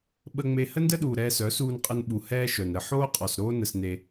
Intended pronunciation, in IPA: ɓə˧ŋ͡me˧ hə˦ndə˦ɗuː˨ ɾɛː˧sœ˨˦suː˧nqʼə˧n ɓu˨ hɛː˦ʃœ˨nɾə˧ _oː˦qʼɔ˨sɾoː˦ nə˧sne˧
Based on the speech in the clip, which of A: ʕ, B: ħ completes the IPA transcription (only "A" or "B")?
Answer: B